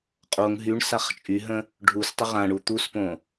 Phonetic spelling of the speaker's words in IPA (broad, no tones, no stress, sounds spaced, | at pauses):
qʼ o ŋ ɦ y ɳ s a χ t͡ʃʼ y ɦ ə̃ | ɖʱ u s tˤ ə ʁ ã ɳ u t̪ u s p õ